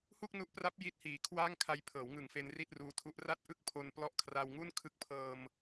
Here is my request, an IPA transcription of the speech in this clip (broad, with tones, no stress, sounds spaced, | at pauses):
h u˥˩ k̚ n u˦˥ ʔ p r a˦˥ p̚ j i˥˩ t̚ h iː˨˩ kʰ w aː˥˩ ŋ kʰ a˧ j pʰ ɤː˩˦ w ŋ ɯ˨˩ ŋ f e˧ n r i˥˩ t̚ r uː˦˥ tʰ u˦˥ ʔ r a˥˩ t̚ ʔ ɯ˥˩ k̚ pʰ o˧ n p l ɔ˦˥ ʔ kʰ r a˧ w ŋ u˥˩ n kʰ ɯ˥˩ k̚ pʰ ɤː˧ m